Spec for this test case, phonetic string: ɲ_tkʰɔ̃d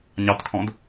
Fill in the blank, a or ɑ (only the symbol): ɑ